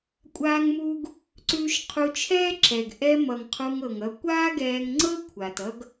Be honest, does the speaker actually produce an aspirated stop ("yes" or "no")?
yes